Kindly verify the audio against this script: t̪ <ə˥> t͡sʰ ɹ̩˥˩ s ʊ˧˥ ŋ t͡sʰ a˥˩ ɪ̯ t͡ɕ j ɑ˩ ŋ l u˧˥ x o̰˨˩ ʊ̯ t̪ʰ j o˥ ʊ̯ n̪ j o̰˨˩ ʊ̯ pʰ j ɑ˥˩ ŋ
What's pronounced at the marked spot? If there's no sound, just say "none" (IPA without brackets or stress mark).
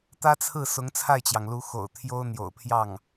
ä˥